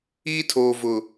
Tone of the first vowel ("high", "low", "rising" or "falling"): high